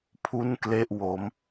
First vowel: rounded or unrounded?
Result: rounded